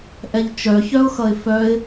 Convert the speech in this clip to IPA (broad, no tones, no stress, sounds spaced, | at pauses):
ʔ ɛ ʎ t͡ʃ œ ç œ ʊ̯ x ʌ ɪ̯ f œ ɪ̯